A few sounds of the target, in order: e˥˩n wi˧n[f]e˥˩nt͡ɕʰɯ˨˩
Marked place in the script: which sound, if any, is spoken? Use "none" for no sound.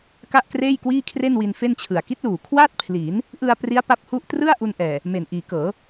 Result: f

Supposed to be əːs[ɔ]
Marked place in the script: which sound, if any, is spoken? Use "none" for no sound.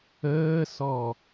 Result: ɔ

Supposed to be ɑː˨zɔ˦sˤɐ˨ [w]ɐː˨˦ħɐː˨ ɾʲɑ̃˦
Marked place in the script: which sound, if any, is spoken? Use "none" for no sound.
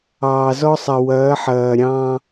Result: w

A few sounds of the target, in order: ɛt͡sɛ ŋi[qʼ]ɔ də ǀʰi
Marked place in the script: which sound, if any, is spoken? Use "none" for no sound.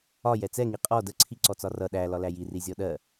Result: qʼ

